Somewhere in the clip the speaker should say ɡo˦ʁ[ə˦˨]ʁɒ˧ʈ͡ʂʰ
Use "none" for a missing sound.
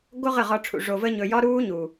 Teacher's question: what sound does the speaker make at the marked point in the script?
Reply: ə˦˨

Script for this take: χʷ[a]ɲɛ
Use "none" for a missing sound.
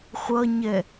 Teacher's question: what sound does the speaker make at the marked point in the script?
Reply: ʌ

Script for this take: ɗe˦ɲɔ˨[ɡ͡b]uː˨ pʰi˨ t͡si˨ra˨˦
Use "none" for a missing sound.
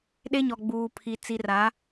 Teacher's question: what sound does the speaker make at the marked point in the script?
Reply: ɡ͡b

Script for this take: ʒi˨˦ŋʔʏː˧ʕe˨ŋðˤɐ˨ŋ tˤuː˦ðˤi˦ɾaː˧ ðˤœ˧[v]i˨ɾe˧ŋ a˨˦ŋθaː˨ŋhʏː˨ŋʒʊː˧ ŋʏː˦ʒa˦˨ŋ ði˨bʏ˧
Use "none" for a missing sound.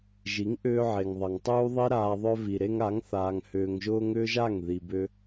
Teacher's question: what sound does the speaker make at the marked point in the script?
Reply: v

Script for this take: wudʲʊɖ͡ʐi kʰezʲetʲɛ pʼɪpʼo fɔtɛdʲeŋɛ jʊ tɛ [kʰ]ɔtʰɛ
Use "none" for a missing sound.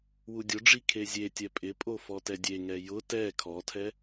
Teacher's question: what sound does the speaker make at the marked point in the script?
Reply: kʰ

